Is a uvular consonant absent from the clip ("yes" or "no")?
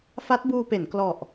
yes